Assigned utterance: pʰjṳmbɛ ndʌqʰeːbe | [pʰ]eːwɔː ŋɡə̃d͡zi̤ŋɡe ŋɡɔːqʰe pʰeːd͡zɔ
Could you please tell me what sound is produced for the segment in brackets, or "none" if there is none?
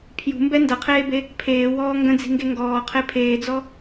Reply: pʰ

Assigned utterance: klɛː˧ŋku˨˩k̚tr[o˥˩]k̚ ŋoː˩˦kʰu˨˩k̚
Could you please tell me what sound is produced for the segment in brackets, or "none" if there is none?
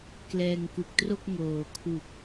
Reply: o˥˩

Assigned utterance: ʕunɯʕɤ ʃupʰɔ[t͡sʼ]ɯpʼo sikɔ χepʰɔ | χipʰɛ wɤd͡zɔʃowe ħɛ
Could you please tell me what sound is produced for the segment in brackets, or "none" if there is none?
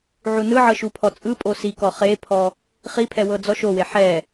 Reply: t͡sʼ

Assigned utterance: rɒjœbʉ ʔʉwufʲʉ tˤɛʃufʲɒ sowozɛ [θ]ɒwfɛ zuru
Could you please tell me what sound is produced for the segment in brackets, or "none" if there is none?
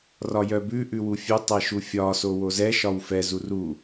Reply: ʃ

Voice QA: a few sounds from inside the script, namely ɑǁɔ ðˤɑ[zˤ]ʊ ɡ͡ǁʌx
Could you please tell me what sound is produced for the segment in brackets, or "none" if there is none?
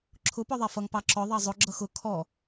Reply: zˤ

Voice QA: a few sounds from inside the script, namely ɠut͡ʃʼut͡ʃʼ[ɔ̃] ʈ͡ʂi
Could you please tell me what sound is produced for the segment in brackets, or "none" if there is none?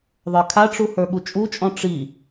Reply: ɔ̃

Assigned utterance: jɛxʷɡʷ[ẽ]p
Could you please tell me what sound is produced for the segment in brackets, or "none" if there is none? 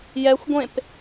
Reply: ẽ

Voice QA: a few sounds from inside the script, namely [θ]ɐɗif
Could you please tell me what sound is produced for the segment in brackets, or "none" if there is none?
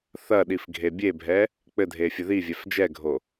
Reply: θ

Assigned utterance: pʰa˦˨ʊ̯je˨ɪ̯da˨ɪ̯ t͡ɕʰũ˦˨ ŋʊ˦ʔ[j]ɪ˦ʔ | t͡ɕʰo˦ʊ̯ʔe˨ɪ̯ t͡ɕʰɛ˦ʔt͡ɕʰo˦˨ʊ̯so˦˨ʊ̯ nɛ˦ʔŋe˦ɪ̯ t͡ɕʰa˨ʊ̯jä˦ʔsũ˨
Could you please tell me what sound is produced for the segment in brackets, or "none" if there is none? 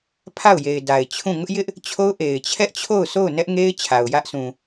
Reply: j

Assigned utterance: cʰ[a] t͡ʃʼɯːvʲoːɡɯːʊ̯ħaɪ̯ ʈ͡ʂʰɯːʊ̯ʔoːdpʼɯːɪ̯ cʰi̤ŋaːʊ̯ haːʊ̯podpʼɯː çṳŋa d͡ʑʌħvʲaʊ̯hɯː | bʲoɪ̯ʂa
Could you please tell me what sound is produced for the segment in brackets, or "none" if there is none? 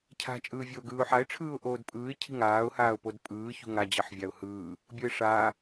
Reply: a̤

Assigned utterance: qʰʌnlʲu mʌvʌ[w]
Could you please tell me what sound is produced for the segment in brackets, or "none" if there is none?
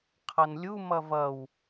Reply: w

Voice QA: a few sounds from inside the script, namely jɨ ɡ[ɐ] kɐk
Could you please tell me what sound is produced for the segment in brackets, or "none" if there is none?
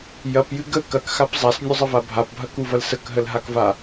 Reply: ə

